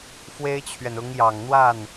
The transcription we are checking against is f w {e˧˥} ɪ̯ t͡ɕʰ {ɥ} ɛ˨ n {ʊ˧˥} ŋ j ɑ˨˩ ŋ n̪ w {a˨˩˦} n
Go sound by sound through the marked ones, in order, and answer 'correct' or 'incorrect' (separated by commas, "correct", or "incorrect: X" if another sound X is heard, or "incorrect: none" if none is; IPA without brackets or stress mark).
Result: incorrect: e˥, correct, correct, incorrect: a˥˩